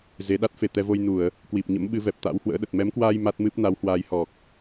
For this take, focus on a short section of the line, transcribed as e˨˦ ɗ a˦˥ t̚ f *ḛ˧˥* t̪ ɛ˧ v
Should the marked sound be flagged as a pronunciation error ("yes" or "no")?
yes